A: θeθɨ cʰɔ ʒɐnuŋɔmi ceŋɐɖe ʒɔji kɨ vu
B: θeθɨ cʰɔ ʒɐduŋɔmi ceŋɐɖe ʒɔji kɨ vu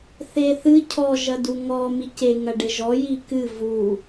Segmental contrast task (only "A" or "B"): B